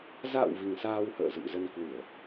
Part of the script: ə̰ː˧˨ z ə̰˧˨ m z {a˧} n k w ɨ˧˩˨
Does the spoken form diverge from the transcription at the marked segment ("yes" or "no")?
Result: yes